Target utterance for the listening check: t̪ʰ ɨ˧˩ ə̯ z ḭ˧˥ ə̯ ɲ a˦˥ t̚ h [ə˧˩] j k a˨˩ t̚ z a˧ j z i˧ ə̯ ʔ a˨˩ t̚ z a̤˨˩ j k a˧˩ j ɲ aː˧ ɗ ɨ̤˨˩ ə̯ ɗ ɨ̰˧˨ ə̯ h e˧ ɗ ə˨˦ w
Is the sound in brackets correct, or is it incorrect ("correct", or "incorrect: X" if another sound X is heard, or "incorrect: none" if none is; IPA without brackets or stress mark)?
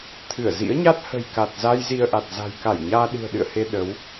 incorrect: ə̤˨˩